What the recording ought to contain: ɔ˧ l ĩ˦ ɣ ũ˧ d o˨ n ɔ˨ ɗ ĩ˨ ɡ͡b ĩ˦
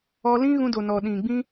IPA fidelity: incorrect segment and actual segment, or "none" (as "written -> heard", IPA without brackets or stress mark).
none